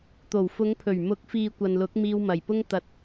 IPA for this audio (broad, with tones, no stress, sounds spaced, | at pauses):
t̪ o˨˩ w f ʊ˨˧ ŋ pʰ ɵ˨˩ ɥ m ʊ˨˥ k̚ f iː˨ kʷ ɐ˨ n l ʊ˨˥ k̚ m iː˧ w m ɐ˨˩ j p ʊ˥ ŋ t̪ ɐ˨ t̚